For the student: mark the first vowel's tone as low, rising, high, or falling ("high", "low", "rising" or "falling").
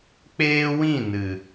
high